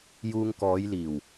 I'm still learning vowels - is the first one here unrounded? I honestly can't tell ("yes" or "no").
no